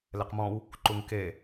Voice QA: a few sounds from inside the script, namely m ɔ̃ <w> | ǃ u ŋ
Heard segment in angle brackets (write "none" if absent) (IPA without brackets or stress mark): w